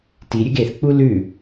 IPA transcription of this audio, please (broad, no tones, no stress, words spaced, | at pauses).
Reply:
tiɾʲɨɡ eθk͡pu lʉ